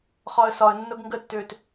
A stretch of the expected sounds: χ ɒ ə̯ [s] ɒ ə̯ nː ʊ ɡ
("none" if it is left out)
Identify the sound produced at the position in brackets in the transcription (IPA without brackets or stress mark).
s